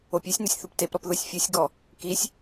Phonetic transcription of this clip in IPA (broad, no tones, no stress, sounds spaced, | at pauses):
o pʲ e sʲ n o sʲ θ u p t e p ɾ ɔ p ð o sʲ fʲ u sʲ ɡ ɔ | k i sʲ